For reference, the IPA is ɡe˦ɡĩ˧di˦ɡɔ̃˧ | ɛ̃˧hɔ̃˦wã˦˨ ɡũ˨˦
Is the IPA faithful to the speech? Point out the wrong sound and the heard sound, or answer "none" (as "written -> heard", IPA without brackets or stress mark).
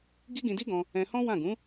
e˦ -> i˦